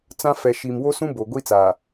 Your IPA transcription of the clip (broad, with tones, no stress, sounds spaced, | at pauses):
t͡s ã˦ f ɛ˨ ʃ i˨ m w o˦ s ũ˦ b o˨ ɡʷ i˦ t͡s aː˨